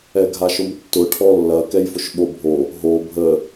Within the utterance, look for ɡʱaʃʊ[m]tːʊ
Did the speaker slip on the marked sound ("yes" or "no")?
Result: no